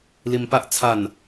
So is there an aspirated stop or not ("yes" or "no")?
yes